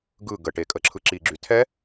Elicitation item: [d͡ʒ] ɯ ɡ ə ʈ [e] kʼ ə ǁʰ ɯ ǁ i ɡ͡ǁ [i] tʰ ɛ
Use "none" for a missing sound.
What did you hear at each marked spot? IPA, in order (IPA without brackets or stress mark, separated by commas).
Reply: ɡ, e, y